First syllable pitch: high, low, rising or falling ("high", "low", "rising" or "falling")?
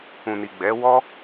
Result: low